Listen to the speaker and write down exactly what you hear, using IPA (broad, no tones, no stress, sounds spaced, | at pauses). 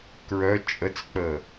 k ɹ œ t͡ʃʼ ə t͡s k͡p ə